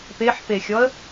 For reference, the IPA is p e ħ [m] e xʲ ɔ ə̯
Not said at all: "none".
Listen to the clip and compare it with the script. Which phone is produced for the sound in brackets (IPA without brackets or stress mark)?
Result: p